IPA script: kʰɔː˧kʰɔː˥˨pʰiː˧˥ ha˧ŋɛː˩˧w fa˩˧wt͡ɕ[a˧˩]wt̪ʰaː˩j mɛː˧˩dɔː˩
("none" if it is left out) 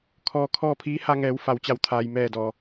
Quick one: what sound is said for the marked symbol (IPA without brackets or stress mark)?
a˧˩